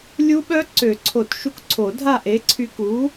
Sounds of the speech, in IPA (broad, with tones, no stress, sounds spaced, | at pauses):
lʲ u˦˥ ɓ œ˦˥ ǀ ø˨˩˦ ǀʰ o˨˩˦ t ʃ u˨˥ k ǀʰ o˨˩˦ dʱ a˥˨ ʔ e˨˥ ǀʰ y˧ k u˨˥